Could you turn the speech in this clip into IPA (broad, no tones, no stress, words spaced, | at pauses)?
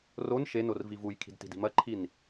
ron ʃenor vivujkʰi̤d ti̤di̤mɐǃʰin